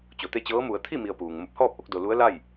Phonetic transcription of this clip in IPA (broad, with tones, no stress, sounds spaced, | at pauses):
t͡ɕ o˩ t̪ e˥˨ t͡ɕ ɤː˧˥ m u˩˧ ə̯ t̪ʰ i˥˨ m i˧ ə̯ p uː˩ ŋ m o˧˩ p̚ h ɔː˥˨ p̚ ʔ o˧ k̚ d o˧ l u˧˥ ə̯ l a˥˨ j